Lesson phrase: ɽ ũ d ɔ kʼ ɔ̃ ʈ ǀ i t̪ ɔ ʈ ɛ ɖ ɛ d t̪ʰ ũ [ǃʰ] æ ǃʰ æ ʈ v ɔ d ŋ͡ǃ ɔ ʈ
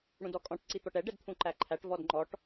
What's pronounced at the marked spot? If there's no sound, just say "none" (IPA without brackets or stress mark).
ǃ